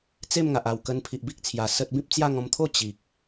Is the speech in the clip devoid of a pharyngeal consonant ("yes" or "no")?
yes